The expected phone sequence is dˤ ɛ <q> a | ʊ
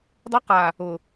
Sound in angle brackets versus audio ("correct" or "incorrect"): correct